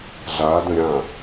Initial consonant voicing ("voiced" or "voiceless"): voiced